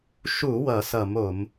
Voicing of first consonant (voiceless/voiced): voiceless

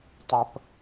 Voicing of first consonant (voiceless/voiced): voiceless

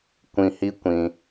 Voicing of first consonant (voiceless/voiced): voiceless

